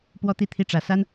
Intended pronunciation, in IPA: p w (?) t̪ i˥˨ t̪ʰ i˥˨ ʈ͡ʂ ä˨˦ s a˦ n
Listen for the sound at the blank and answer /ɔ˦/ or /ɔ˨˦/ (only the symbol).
ɔ˦